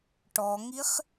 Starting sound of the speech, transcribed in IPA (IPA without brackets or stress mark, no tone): ʈ